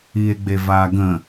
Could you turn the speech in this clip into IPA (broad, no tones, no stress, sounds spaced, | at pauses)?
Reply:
i e̯ ɡ͡b e v a ɡ ə̃